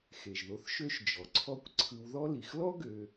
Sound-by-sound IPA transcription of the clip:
xe˩ʒðo˨θ ʃø˦ʃ d͡ʒɔ˩ǀʰɔ˦kʷ ǀʰɯ˨wðɔ˦ li˩xlɔ˥ ɡø˨

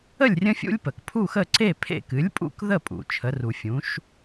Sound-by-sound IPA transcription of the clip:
ə˥˨lʲrʲə̃˦fʲṵ˦lʲpə˩k pʰu˥˨xə˥˨ ǀe˥˨pʰḛ˥˨ kɨ˩˥lʲpʼṵ˥˨kðə˥˨ pʼṵ˩ t͡ʃʰə˩˥ru˩fʲũ˩˥ʃ

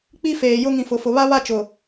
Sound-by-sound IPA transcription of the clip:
k͡pi˦ feː˨jʊ˦ŋĩ˨ fʊ˨fʊ˨ βa˦βa˦t͡ʃʊ˨

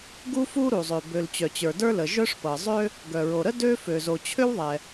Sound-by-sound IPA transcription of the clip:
ɡu˥fu˥ ɾu˩zˤø˩ bø˩l t͡ɕœ˩t͡ɕə˞˩də˞˥lə˩ ʒœ˥ʂpɤ˩ zˤø˥ | ɡœ˩ɹo˩ɾə˥ dø˥ fø˩zo˩ t͡ɕʰø˥wðˤɛ˩

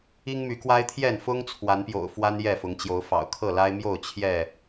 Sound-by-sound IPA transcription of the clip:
i˦ŋmy˨˦kwa˦ɪ̯t̪ʰjɛ˥˨n fʊ˦ŋ t͡sʰwa˨˦npjo̰˨˩ʊ̯fwa˦n jɛ˥˨fʊ˨˦ŋ t͡ɕjo˨˦ʊ̯fɑ̰˨˩ʊ̯ kʰɤ˥˨la˦ɪ̯mjo˥˨ʊ̯ t͡ɕʰjɛ˥˨

